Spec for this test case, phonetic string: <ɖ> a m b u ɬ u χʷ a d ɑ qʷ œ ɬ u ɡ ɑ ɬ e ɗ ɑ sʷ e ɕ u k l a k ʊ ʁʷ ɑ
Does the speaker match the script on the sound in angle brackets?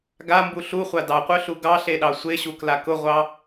no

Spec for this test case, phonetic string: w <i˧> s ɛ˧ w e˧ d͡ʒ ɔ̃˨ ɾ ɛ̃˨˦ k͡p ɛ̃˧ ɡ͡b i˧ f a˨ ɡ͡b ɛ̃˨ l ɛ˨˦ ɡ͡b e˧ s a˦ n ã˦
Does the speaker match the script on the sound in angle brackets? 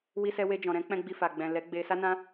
yes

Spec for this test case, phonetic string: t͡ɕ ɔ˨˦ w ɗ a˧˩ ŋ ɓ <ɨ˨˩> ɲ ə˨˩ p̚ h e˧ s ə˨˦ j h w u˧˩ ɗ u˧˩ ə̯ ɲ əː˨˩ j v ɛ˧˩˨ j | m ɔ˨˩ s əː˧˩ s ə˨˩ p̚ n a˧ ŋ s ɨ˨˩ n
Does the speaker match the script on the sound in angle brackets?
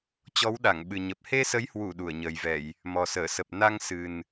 yes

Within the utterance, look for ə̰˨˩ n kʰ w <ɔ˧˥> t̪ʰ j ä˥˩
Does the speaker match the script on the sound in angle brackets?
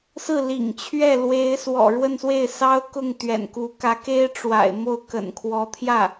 yes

